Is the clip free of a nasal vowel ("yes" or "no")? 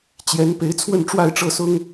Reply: yes